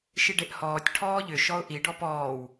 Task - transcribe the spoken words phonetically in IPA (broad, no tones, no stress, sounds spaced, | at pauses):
ʃ i ɖ e ʔ h ɔː tʲ ʈʰ ɔː ʎ ʏ ʃ ɔ ʊ̯ ʔ i ɖ ɔ p ɔː w